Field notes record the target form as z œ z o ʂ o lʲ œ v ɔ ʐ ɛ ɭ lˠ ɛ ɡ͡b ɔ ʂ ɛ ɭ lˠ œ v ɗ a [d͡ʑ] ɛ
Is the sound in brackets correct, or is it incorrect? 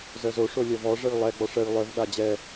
correct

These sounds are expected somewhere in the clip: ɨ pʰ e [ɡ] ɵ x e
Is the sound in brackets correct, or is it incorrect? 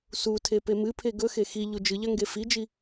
correct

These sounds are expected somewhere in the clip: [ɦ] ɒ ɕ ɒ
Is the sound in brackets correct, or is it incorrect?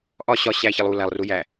incorrect: ʔ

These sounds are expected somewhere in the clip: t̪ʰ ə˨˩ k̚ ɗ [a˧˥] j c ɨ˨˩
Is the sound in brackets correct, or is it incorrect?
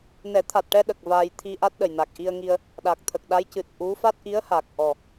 correct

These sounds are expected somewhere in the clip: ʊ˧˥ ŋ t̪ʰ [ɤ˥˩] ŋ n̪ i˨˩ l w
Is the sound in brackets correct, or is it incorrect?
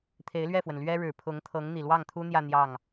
incorrect: ɤ˧˥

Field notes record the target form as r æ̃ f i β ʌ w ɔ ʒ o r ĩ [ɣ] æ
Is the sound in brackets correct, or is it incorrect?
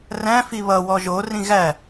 correct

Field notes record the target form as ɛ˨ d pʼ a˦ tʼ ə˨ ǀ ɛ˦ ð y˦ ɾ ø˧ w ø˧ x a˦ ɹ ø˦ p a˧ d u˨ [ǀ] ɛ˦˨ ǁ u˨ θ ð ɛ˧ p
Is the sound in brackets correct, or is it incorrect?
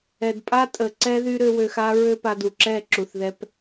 incorrect: ǁ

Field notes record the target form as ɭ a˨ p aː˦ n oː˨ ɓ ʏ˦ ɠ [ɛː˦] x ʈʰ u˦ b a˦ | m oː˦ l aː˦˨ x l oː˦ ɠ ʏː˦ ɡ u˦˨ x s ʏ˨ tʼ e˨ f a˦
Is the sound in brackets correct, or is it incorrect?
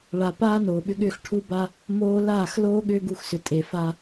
incorrect: ʏː˦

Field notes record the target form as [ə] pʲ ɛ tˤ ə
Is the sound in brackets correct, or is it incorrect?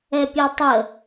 incorrect: ɛ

